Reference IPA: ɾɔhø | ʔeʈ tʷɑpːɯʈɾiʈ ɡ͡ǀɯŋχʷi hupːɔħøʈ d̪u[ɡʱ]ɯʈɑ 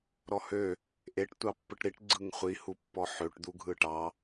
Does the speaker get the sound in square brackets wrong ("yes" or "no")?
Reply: no